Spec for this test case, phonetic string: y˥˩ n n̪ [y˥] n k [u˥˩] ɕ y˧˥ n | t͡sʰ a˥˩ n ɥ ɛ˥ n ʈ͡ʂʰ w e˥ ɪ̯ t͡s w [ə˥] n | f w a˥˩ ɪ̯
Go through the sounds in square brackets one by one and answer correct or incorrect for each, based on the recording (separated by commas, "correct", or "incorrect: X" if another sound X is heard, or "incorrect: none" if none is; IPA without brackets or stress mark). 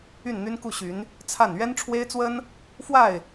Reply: correct, correct, correct